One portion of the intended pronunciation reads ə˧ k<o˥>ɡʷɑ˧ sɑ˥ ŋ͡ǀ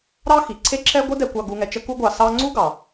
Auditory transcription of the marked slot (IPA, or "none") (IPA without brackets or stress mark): u˥